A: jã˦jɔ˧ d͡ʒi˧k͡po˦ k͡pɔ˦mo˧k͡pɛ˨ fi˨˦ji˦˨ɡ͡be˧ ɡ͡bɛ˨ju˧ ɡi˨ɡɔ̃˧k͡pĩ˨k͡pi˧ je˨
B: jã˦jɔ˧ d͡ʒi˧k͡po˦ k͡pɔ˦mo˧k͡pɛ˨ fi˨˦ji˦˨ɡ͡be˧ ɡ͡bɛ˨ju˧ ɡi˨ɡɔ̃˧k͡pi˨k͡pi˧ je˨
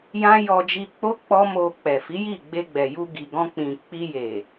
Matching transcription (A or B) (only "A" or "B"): A